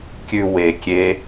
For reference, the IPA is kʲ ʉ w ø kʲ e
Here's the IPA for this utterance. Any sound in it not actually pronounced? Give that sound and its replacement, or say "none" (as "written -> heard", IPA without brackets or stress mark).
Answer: ø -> e